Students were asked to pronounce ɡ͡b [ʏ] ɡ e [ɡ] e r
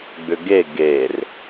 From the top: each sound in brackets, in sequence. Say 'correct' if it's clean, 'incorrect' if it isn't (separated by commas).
correct, correct